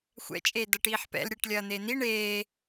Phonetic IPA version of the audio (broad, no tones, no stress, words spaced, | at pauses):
xʷɛ̰ t͡ʃʼeːdɐʈiːħpɛ̰l ɾʲɛʈlʲɐːn̪en̪i ɳeː